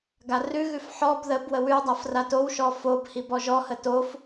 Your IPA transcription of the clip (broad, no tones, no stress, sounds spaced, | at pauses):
ɡ a r ʉ ɣ ʉ f ħ ɔ b ð ə b w ə w ʉ w dˤ a f r a t o w ʃ ɔ f o b h i b ɔ ʒ ɔ h ə t o f